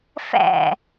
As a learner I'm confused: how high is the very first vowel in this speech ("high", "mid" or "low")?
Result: low